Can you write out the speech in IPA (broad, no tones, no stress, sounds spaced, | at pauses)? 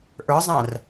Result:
ʔ ə˞ zˤ æ̃ r